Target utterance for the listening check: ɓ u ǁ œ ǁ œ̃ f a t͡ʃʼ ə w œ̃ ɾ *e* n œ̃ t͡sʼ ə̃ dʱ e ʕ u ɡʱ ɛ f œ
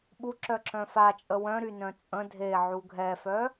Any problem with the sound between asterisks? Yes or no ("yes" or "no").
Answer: yes